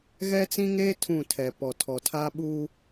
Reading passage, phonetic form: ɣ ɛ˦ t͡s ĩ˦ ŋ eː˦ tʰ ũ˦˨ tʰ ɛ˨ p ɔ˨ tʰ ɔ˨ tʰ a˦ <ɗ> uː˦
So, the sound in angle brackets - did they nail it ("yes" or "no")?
no